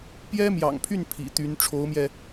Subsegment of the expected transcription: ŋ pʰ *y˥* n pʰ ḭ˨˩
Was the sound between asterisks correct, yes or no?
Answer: no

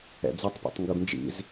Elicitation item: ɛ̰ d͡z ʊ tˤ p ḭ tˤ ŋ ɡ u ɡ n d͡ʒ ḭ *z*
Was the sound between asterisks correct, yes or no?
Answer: yes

